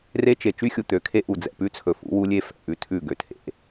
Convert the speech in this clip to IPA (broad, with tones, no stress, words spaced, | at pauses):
re˦t͡ʃe˨ t͡ʃy˦xʲu˨ t̪ø˨kʰe˦ ʔu˨ d͡zɛ̰˨pʉ˦ t͡sʰɵ˨fṵ˨˦ wu˦lʲe˦ fɛ̰˨ʔʉ˦tʰʉ˦˨ ɡø˨tʰḛ˦